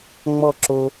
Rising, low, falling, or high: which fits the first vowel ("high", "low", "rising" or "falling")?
falling